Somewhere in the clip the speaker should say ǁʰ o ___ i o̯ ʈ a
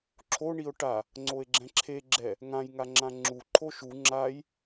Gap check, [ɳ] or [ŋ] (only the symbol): ɳ